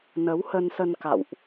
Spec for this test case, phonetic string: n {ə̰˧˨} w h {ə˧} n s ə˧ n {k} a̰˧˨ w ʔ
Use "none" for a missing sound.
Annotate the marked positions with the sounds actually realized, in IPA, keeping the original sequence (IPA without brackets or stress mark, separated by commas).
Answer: ə˨˦, ə˧, k